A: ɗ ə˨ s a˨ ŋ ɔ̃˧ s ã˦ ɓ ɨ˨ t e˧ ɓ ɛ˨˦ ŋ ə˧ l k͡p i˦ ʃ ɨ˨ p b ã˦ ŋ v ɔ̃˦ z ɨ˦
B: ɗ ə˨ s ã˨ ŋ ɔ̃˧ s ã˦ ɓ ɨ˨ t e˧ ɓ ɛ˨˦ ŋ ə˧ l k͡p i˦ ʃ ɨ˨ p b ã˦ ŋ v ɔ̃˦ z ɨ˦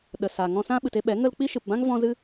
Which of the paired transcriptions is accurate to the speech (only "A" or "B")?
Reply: A